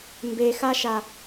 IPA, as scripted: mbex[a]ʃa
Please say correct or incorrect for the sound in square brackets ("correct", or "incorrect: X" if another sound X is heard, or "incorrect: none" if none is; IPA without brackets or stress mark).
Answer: correct